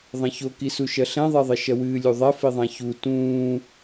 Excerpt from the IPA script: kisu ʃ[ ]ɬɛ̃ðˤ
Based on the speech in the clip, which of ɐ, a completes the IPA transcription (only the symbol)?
ɐ